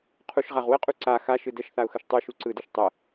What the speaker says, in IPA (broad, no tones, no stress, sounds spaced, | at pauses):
qʰ u ʃ ʁ a ʁ w ə qʼ u ǀ a x a ʃ ɯ d ə ʃ θ a ʊ̯ x ə ʃ tˤ u ʃ u ǀ ɯ d ɯ ʃ tˤ ə